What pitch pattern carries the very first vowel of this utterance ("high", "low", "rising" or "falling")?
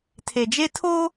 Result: low